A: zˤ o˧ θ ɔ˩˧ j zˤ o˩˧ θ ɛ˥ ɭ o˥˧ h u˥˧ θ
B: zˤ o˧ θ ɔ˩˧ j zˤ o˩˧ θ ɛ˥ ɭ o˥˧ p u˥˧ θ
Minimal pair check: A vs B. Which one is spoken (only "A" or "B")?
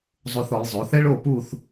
B